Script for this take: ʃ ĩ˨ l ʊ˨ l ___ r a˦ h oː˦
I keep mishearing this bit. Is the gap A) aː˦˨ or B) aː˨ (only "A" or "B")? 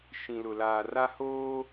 B